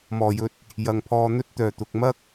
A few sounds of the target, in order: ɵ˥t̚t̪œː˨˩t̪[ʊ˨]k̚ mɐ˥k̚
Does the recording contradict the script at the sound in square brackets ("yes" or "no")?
no